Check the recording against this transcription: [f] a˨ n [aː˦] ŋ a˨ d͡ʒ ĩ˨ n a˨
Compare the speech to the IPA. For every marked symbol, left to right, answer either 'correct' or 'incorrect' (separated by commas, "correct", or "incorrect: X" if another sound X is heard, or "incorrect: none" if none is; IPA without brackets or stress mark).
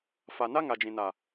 correct, incorrect: a˦